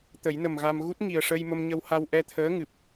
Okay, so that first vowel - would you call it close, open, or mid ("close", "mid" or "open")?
mid